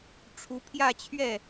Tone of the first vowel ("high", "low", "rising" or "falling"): rising